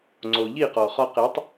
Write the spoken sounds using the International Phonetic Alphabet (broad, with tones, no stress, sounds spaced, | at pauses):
ŋ͡ǀ o˨ ʎ i˦˨ q ɔ˨ χ ɒ˧ q e˨˦ tˤ